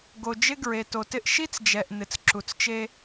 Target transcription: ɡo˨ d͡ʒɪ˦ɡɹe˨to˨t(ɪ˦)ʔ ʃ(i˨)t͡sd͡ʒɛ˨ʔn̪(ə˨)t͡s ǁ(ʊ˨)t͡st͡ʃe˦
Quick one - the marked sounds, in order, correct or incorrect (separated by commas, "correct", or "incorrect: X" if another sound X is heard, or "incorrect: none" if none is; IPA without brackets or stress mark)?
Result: correct, incorrect: i˦, incorrect: ɪ˨, incorrect: u˨